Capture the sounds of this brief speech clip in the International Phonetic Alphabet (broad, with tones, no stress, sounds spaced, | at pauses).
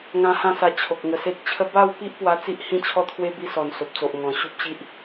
ŋ ã˧ h ã˥˧ s a˧ t͡ɕʰ o˨ k̚ ŋ ə˨˩ s e˦ t̚ t͡ɕʰ ə˦ b a˥˧ w p i˦ ʔ p w a˧ t͡s i˦ ʔ h ĩ˦ t͡ɕʰ ɔ˦ t̪ʰ w e˦ b i˧ s ɔ˨˩ n s o˨ p̚ t͡s o˨ ʔ ŋ ɔ̃˨˩ ɕ u˦ p̚ ɕ i˦ ʔ